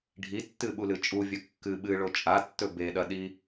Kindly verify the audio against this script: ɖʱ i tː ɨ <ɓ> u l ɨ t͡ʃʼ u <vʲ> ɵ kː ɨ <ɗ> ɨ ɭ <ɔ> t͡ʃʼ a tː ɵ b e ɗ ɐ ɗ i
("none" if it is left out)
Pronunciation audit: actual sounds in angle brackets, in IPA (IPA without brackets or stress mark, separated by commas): ɓ, vʲ, ɓ, o